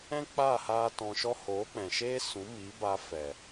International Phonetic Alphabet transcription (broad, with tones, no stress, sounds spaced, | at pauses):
ɛ̃˦ k͡p aː˦˨ h aː˧ t ɔ̃˧ ʃ ɔ˦ h oː˨˦ k͡p ɛ̃˨ ʃ eː˦ s ũ˨˦ m i˨˦ b a˧ f ɛ˨